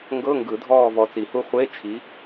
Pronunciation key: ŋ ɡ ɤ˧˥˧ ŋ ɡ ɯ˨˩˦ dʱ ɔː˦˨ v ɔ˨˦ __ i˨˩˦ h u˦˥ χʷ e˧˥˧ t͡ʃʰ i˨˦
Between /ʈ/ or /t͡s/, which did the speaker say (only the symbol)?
t͡s